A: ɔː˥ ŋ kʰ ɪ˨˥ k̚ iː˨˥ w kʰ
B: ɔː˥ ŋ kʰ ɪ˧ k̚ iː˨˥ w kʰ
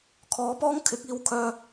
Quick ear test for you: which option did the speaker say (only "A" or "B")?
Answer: A